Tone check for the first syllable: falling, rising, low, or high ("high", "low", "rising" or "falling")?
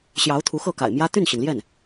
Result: rising